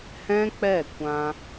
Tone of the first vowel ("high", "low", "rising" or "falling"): high